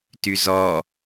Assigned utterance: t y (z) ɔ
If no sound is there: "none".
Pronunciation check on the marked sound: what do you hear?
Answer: z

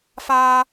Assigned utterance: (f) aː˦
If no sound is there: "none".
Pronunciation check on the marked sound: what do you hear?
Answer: f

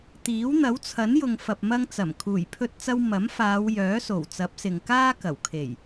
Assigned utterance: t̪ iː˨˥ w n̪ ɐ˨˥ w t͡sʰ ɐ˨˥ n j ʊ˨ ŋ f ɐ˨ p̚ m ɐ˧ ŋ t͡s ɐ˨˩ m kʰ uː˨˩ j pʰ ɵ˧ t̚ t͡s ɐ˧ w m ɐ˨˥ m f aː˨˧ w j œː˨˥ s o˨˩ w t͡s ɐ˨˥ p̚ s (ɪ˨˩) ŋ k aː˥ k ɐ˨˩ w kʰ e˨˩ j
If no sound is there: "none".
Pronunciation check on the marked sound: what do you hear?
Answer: ɪ˨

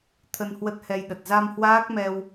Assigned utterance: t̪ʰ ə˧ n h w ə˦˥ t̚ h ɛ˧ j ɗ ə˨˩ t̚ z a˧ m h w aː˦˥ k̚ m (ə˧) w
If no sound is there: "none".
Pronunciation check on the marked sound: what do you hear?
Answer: ɛ˧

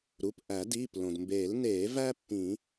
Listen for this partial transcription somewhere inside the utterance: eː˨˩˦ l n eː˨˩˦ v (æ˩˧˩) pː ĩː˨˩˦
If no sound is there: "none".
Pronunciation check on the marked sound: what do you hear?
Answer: æ˥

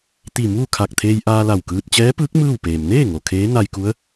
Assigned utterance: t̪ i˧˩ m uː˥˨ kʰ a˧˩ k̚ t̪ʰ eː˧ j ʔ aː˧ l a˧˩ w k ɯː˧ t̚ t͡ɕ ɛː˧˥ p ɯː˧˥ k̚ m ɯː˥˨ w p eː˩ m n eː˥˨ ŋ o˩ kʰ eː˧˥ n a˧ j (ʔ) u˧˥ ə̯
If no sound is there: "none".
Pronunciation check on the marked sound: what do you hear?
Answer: k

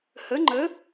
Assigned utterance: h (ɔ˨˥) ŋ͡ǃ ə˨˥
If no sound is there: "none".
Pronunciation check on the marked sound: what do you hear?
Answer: ə˨˥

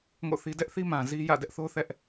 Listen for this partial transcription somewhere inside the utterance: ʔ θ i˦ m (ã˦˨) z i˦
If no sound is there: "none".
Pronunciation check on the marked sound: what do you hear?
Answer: ã˨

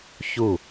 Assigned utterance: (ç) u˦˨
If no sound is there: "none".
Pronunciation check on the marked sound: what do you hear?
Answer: ç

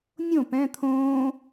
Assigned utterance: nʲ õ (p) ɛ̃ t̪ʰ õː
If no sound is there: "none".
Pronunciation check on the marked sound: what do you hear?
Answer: p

